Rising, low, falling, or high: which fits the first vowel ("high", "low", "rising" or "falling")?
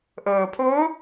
low